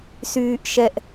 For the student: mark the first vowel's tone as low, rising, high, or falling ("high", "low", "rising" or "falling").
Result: high